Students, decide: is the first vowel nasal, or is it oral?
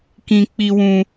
nasal